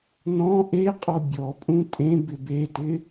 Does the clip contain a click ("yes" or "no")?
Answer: no